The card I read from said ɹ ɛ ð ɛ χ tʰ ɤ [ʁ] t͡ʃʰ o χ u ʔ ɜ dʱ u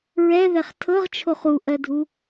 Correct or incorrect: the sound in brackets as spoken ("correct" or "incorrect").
correct